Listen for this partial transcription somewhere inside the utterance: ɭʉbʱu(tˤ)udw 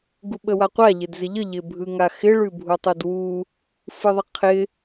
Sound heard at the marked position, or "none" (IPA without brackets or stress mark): tˤ